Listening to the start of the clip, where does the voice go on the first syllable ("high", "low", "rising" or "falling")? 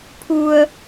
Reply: low